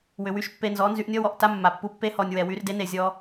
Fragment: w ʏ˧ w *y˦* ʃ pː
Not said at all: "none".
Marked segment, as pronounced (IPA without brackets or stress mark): y˦